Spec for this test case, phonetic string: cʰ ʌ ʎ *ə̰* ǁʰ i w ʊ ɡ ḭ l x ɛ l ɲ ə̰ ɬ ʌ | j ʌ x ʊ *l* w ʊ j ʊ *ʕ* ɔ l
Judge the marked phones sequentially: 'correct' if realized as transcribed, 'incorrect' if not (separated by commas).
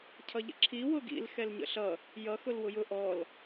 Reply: correct, correct, incorrect